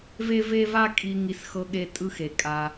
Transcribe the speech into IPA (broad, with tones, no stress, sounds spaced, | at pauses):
v e˦ v e˦ v a˦ kʼ i˧ ŋ i˧ s x ɤ˧ ɠ e˧ tʼ ɯ˧ x e˨ kʼ a˧